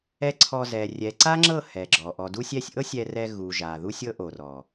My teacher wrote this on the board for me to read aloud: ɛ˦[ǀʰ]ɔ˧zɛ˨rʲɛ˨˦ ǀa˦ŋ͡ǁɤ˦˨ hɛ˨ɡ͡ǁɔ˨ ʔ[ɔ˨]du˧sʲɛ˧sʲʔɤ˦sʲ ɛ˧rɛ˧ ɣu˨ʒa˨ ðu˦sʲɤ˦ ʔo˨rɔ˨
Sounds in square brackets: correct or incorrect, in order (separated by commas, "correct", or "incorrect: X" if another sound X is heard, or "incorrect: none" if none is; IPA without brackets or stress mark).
correct, correct